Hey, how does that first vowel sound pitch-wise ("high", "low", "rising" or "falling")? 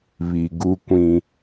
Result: low